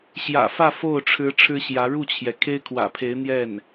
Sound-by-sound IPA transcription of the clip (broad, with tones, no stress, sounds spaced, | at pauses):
ɕ j ä̰˨˩ f ä˥˧ f o˥˩ ʊ̯ ʈ͡ʂʰ ɻ̩˧˥ ʈ͡ʂʰ ɻ̩˥ ɕ j ä˧˥ ɻ u˥˩ t͡ɕʰ j ɛ˩ kʰ e˥ ɪ̯ kʰ w ä̰˨˩ pʰ e˧˥ ɪ̯ n̪ j ɛ˥˩ n